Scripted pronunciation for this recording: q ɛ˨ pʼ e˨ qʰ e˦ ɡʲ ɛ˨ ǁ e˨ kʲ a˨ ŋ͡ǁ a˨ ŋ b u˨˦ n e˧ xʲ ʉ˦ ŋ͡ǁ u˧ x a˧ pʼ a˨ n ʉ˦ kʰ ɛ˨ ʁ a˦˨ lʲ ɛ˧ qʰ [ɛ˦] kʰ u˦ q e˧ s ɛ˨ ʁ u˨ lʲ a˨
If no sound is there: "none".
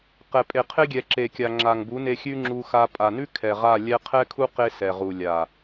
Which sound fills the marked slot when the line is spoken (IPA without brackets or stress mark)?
ɛ˦